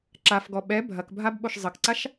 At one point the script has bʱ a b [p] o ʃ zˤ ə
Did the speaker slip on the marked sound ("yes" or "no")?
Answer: yes